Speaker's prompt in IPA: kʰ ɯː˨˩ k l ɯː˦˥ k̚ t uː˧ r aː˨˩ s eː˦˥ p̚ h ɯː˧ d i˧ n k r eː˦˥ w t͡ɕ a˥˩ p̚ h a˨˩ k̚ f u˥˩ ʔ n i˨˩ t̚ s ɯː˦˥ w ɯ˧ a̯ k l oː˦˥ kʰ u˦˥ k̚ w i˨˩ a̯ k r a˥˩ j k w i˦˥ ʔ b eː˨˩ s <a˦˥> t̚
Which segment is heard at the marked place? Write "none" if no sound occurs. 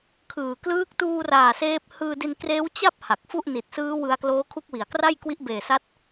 a˦˥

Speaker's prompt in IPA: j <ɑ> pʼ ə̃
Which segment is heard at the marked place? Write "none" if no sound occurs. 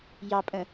ɑ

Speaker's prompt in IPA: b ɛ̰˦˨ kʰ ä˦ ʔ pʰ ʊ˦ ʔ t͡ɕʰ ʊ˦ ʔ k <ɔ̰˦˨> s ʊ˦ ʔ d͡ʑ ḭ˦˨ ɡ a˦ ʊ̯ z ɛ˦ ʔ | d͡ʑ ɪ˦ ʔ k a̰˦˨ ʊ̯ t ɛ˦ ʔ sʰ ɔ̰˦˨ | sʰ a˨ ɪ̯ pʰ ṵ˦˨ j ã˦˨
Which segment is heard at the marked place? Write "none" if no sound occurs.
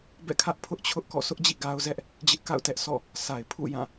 ɔ̰˦˨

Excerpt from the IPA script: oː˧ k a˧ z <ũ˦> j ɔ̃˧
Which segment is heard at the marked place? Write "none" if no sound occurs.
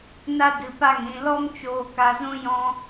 ũ˦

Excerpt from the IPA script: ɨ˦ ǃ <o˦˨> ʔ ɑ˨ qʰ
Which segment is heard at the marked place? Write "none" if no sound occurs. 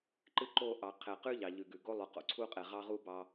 o˦˨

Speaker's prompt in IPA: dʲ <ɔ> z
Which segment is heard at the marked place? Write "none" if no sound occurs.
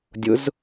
ʊ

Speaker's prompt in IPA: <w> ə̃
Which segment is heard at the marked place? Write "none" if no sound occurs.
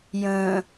j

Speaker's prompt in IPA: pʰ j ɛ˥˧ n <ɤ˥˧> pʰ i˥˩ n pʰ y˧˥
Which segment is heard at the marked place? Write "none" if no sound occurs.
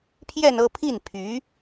ɤ˥˧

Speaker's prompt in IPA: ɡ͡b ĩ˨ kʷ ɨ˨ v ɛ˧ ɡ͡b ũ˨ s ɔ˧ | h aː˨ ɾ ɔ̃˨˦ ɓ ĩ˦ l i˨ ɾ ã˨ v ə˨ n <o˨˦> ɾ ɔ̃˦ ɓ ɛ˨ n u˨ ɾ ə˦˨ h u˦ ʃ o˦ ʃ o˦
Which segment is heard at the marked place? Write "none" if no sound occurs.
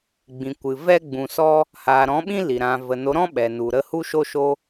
o˨˦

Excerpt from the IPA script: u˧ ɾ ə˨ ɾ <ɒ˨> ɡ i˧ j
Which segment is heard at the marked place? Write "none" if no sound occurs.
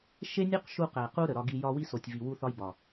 ɒ˧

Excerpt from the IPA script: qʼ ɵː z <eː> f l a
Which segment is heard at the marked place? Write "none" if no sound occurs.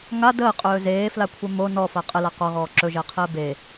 eː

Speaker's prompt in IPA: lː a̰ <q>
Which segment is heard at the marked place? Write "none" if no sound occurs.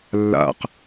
q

